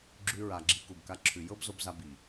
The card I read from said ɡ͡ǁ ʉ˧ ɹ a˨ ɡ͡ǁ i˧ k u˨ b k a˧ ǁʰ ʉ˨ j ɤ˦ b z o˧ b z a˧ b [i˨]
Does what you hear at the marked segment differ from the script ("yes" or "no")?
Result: no